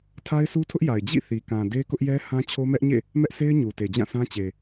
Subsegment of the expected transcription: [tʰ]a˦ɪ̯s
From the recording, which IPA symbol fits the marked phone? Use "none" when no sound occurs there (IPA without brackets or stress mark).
tʰ